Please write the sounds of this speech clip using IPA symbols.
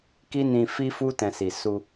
k i˦ n ĩ˧ f i˦ f u˦ t ɛ̃˧ s i˨ s u˧

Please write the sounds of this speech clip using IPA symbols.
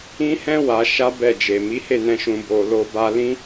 ĩ˦ h ɛ̃˦ w a˧ ʃ a˦ b ɛ˦˨ d͡ʒ e˨ m i˨˦ h e˦˨ n ɛ̃˧ ʃ ũ˨ b o˨ l o˧ b a˧ l ĩ˦

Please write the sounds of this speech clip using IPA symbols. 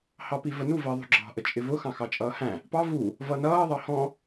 h ɑ p i v ə n u v ɜ ðˤ ṳ ɡ͡ǁ ɑ̤ ʔ ə t͡ʃʼ ɪ v ʊ x ɑ̃ x ɑ t͡ʃʼ ʌː h æ̃ | p ɑ v u | v ʌ n ʌː ðˤ ɑ h ɔ̃

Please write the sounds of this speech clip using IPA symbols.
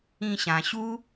ĩ˧ ɕ ã˨ ɕ u˦

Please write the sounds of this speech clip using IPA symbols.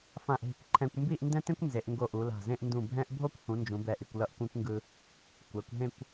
f ã˧˩ ʔ ɦ i̤˧˩ kʷ ǃʰ ɛ̃˧ kʷ m b i˥˧ ʔ n d ɛ̃˥ t ẽ˥ kʷ n z e˩˧ ʔ ŋ ɡ o˧˩ ʔ u˩˧ l a̤˧˩ z ẽ˥˧ ʔ n d ũ˧˩ bʱ ɛ̃˥ ʔ bʱ o˥ kʷ h ũ˩˧ n d͡ʒ ũ˩˧ b ɛ˧ ʔ i˩˧ kʷ l ʌ˥ ʔ kʷ ẽ˥ kʷ ŋ ɡ ɯ˧ | kʷ ɛ˩˧ kʷ ɦ ẽ˥˧ kʷ

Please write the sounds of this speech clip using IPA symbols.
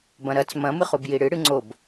b ɐ̃ ɾ ɐ t͡s m ɐ̃ m ɨ χ u b j i ɽ ɨ ɽ ɨ ŋ͡ǀ o b

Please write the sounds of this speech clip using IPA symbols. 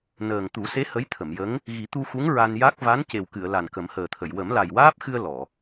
n əː˨˩ ŋ t̪ u˨˩˦ s e˧˥ h ə˧˥ j t̪ʰ ə˨˩˨ m j ə˧˥ ŋ | ɣ i˨˩˦ t̪ u˧ x u˧˥ ŋ ɹ a˧ n j a˦˥ k̚ v a˧˥ n c e˨˩ w k ɨ˨˩˨ ə̯ l a˨˩ n k ə˨˩˦ m h əː˨˩ t̪ʰ ə˨˩˨ j w ə˨˩˦ m l a˨˩ j w aː˦˥ p̚ x ɨ˧ ə̯ l ɔ˨˩˨

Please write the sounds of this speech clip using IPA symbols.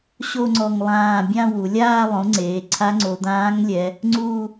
ɕ o˥˧ ŋ͡ǀ ɔ˧˩ ŋ lˠ ãː˧˩ bʲ ã˥˧ w u˩˧ lʲ aː˥˧ lˠ õ˩˥ ŋ͡ǀ eː˩˧ ǀʰ a˧˥ ŋ͡ǀ o˩˧ d̪ ãː˧˥ ŋ lʲ ɛ˩˧ | ŋ͡ǀ u˥˧

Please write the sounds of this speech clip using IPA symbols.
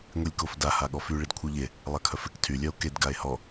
ŋʷ i lʲ k o f d a h a ɠ ɔ f y ɭ i d kʷʰ œ ʎ e | lˠ a kʰ œ f e k tʰ y lʲ œ o̯ k e d ɡ a e̯ h ɔ

